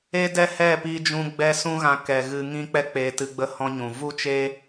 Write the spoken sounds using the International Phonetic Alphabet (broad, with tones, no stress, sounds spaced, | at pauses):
e˦ d ɛ˦ h ɛ˦˨ p i˧ d͡ʒ ũ˧ ɡ͡b ɛ˦ s ũ˦ ɣ ã˧ k ɛ˨ ɣ ɨ˧ ŋ ĩ˦ k͡p ɛ˦ k͡p eː˧ t ɨ˧ ɡ͡b ə˦ h ɔ̃˦ ɲ ũ˨ v u˦ t͡ʃ eː˦